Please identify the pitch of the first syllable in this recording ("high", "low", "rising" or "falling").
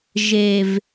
low